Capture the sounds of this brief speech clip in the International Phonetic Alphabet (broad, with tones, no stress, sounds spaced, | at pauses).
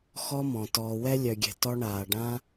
x ɔ˦ m ɔ̃˨ t ɔː˨ w ɛ˧ lʲ œ˨ ɡʲ ɛ̤˨ t ɔ˧ ɳ aː˨ ɖ ã˦